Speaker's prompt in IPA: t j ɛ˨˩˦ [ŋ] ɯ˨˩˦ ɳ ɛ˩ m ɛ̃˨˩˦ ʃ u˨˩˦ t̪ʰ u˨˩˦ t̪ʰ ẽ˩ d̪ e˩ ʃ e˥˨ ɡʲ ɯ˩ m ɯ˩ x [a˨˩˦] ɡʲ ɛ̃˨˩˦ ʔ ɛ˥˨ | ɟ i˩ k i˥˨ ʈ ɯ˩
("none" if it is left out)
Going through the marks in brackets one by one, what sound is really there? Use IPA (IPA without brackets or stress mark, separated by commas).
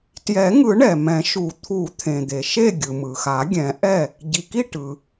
ŋ, a˨˩˦